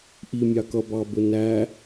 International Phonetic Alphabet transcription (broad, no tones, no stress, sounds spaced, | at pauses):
ʔ i mʲ ɑ k ʌ b ɑ b ʊ n æ